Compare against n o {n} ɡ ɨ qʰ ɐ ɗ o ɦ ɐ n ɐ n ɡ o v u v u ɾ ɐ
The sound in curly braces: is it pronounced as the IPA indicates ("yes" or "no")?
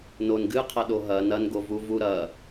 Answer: yes